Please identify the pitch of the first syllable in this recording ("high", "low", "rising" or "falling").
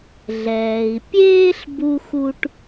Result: low